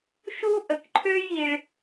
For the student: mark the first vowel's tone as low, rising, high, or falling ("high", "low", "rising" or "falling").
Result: high